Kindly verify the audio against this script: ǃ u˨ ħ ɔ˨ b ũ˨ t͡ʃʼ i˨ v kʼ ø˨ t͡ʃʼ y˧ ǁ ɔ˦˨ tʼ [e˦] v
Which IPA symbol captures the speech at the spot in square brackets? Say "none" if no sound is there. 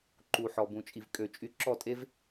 e˦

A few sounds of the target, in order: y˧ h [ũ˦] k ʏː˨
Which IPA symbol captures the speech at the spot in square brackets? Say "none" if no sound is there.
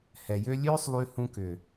ũ˧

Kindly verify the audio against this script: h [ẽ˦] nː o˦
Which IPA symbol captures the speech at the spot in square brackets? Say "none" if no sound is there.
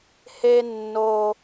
e˦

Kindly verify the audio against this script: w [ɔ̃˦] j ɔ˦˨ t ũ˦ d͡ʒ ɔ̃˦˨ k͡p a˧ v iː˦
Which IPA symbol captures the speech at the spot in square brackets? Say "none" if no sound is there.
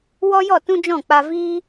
ɔ˦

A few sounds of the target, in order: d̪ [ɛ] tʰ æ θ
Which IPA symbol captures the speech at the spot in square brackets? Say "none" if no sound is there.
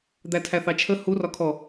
æ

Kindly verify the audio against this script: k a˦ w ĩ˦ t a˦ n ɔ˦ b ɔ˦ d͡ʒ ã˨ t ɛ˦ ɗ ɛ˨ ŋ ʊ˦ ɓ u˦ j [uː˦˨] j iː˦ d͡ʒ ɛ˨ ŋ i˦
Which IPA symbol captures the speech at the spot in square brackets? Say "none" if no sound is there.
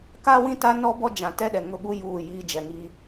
uː˦˨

